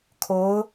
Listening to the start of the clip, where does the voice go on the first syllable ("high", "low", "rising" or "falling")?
rising